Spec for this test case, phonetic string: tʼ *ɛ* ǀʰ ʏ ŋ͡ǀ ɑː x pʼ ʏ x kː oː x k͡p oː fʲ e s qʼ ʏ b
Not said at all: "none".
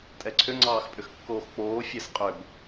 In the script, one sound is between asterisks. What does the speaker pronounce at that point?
ɛ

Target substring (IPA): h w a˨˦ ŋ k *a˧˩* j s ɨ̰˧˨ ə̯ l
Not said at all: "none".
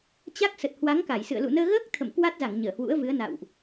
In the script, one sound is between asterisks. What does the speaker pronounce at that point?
a˧˩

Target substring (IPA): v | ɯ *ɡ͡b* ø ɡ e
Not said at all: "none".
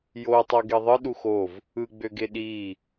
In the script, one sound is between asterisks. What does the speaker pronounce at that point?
ɡ͡b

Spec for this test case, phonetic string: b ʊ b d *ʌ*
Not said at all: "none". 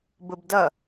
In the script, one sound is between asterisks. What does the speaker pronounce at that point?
ʌ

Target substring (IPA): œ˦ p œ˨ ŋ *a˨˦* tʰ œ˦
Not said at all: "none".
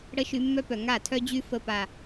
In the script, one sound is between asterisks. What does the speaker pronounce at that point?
a˦˨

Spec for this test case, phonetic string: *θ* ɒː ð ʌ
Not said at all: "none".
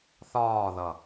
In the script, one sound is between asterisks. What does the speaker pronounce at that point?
θ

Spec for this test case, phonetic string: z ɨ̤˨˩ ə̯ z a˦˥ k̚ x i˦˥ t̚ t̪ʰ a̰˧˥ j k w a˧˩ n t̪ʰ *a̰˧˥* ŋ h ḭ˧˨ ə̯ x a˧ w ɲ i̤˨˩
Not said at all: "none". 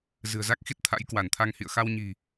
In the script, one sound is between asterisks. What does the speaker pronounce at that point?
a˧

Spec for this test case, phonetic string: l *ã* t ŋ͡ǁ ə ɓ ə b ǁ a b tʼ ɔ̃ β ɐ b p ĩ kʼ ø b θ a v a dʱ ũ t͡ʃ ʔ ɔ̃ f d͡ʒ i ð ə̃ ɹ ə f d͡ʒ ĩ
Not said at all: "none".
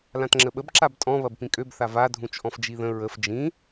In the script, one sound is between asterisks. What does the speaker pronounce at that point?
ã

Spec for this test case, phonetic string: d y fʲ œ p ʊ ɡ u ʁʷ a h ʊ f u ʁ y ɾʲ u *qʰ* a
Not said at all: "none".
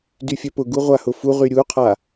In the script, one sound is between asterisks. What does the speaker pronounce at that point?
qʰ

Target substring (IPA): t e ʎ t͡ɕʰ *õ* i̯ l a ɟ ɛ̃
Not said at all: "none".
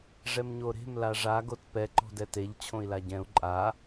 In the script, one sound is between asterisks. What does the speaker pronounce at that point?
õ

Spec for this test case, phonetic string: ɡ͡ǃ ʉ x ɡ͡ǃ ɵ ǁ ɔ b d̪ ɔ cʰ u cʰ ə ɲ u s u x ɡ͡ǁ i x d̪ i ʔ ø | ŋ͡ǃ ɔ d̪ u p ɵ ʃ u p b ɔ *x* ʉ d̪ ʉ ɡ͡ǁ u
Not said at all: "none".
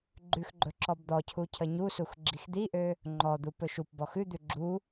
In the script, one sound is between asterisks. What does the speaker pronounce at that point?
x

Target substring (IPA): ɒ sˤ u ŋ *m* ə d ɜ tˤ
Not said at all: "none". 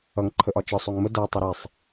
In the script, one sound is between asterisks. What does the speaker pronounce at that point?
m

